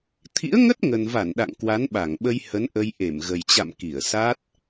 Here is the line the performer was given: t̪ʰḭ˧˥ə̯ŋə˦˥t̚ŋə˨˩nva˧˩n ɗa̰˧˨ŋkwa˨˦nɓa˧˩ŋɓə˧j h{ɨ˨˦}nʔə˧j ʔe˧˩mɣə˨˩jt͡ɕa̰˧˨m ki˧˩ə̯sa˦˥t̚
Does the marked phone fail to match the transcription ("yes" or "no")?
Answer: yes